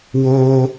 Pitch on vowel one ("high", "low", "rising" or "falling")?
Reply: high